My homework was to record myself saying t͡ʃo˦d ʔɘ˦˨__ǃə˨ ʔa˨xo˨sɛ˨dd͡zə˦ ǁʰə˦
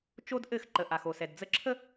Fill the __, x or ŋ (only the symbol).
x